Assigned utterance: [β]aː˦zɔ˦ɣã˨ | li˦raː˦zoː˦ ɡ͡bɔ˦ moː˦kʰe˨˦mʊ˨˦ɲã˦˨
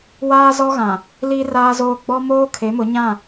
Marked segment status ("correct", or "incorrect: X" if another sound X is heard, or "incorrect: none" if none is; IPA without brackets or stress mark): incorrect: w